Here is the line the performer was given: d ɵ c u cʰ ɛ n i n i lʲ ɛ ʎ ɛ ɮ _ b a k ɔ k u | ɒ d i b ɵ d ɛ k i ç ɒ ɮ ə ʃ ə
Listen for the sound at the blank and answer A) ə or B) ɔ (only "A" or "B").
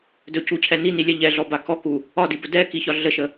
B